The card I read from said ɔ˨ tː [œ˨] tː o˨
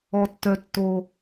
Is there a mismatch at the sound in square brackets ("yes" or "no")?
no